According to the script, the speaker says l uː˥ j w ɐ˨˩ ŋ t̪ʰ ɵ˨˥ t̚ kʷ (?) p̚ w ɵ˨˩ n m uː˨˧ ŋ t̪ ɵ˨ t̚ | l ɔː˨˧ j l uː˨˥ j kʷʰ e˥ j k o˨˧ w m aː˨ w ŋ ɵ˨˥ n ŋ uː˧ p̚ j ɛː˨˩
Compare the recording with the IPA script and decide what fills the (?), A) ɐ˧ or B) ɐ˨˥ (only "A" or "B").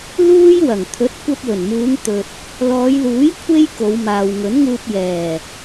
A